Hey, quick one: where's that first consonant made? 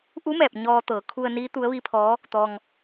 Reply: throat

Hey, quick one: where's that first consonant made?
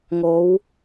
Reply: velum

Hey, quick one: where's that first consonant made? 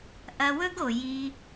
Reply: throat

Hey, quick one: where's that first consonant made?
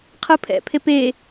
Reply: uvula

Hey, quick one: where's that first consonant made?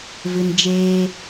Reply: lips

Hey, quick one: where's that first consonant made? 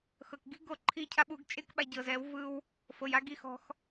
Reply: velum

